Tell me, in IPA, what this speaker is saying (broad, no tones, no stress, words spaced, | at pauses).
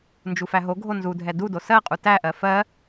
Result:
nd͡ʒufæɦoɡʱo nzudʱɛ dudo sɜqʼu tæʔɜ fɜ